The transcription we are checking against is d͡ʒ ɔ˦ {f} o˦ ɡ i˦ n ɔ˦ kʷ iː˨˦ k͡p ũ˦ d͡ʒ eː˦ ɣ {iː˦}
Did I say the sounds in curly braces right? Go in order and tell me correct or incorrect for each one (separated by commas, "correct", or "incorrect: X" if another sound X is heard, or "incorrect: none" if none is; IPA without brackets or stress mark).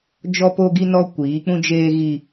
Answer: incorrect: p, incorrect: i˦